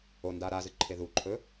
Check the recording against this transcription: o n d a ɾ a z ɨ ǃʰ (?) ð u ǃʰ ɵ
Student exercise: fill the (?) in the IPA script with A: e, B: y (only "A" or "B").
A